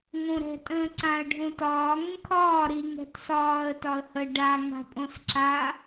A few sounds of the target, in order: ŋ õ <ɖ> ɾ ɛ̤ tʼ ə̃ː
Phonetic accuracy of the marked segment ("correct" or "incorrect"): incorrect